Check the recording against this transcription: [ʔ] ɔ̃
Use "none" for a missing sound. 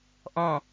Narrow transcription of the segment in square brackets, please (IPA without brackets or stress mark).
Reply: ʔ